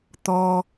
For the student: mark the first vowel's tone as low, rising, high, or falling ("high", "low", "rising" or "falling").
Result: low